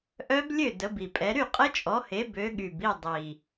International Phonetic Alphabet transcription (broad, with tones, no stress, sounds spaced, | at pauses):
ʔ œ˦˥ b lʲ ø˥˨ d ə˨˦ b i˨˩ pʼ ɛ˨˦ ɾ y˥˨ qʼ ə˦˥ t͡ʃʼ ɔ˨˦ h e˨˦ b ø˨˦ ɠ y˨˩ b i˥˨ dˤ i˨˩